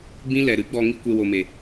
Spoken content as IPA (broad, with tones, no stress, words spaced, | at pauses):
bĩ˦ lɛ˨ɾɨ˨˦ɡ͡bɔ˧ ŋi˦kʷe˧wo˨me˨